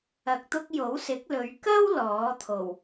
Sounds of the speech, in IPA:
ɐ˧k̚t̪ʊ˥k̚ jo˨˥wsɪ˨˥k̚lɵ˨˧ɥ kɐ˥w lɔː˨˥t̪ʰo˨˩w

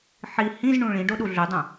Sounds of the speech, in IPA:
ħi hĩzɳũ ɭĩɖoɗu ɮɵdˤũ

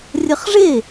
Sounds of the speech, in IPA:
rʲɐχʐe

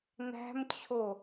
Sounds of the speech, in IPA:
n̪æ̤mt͡ɕʰo

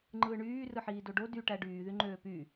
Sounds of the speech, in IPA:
ŋ͡ǃɯːɳyː rɯħiːdoɖo dy ʈæɖyː ðyŋ͡ǃøːpy

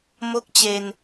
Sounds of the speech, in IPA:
mo˦˥k̚ t͡ɕe˧n

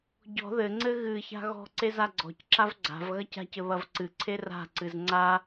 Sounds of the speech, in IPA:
ɟɔ̤ ðɘ ŋ͡ǀɘɣɨça̤ ɣɔ̤ ǀezaɡ͡ǀɔ̤cǁav ɡ͡ǀa̤v ɣɐca̤c ɘβɐvǀɨ ǀʰera̤ǀɨz ŋ͡ǀa

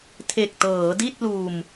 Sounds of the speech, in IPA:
tʰe˨˩k̚tɤː˩˦ di˥˩t̚luː˧m

